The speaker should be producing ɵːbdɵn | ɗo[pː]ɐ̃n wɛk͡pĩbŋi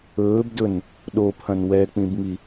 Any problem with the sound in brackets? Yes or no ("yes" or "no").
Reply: yes